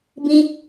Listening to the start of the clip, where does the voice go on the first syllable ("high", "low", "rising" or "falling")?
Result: high